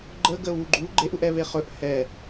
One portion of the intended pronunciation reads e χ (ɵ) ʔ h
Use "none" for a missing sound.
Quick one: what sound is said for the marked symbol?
ɵ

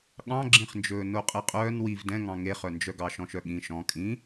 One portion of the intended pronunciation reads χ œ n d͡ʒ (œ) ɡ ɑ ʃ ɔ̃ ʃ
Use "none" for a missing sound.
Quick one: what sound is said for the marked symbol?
œ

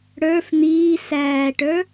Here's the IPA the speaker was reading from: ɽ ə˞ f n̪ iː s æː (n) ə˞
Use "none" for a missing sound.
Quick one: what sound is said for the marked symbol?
ʈ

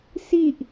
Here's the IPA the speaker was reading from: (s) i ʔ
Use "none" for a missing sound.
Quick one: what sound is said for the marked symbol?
s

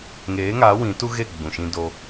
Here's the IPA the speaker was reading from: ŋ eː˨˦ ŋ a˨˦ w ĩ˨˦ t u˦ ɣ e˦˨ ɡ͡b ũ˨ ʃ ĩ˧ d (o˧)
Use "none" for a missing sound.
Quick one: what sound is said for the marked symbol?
o˧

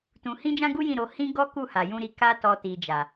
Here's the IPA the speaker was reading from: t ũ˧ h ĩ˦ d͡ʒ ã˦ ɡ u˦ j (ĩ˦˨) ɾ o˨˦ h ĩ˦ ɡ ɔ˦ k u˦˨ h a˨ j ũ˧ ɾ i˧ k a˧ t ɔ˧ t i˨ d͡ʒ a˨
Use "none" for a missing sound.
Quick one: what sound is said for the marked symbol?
ĩ˦˨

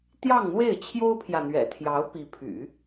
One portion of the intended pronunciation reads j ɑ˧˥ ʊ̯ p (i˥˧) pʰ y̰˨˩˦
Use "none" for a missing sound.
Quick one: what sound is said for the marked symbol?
i˧˥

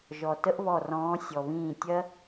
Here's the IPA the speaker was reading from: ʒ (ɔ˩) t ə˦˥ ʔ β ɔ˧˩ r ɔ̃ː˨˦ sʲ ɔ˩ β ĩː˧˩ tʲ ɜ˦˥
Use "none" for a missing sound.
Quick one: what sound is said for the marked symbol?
ɔ˩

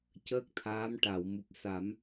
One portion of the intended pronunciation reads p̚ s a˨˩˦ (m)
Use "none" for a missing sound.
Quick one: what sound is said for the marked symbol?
m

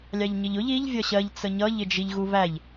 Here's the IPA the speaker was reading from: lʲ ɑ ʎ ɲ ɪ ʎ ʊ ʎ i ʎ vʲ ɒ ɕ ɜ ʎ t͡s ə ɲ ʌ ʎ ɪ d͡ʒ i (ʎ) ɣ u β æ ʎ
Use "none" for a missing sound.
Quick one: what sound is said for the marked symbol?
ʎ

